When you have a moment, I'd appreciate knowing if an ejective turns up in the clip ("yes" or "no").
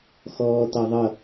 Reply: no